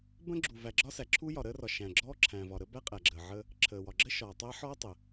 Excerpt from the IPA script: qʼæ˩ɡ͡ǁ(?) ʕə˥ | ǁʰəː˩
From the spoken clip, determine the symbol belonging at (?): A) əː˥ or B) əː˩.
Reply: B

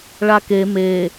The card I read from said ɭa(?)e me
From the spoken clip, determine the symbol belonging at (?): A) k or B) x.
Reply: A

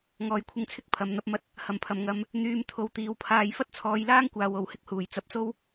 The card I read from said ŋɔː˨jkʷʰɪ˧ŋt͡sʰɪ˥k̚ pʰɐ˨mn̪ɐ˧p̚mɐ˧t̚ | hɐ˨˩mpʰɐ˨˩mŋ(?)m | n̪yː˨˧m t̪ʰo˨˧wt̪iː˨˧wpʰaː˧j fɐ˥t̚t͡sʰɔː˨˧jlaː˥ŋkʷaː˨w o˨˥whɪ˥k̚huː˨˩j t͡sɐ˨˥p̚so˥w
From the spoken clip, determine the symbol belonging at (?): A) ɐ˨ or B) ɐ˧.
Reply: A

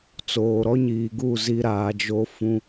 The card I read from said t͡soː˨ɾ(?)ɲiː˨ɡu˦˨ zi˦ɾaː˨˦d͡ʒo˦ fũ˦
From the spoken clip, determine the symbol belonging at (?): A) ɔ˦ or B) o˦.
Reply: A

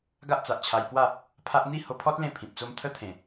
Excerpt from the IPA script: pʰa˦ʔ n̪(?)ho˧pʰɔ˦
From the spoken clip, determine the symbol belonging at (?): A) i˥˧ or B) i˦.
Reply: A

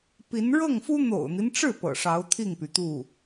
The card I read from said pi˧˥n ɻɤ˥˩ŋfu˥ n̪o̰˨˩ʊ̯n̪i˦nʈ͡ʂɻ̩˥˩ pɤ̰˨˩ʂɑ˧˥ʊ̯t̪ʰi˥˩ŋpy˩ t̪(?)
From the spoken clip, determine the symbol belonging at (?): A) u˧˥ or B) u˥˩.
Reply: B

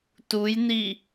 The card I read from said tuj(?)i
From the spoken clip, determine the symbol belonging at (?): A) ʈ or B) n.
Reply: B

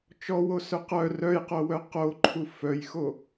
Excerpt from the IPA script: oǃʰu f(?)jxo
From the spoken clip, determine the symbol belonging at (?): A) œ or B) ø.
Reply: A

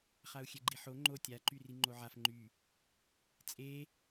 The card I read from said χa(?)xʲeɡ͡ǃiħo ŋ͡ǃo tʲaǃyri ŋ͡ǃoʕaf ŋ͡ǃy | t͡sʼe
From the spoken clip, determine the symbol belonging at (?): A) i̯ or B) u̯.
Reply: B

